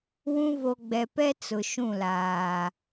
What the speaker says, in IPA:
w ũ˦ v o˨ ɡ͡b ɛ˨ p ɛ˦ t͡s ʊ˨ ʃ ũ˦˨ l aː˨

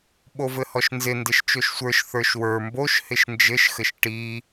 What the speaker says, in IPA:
ɓ o v ɘ h ɔ ʃ n z ɪ n d ɪ ʃ t͡ʃ o ʃ sʷ ə˞ ʃ θ ə˞ ʃ w ə˞ m b o ʃ h ɪ ʃ n d͡ʒ ɘ ʃ x ɘ ʃ ʈ i

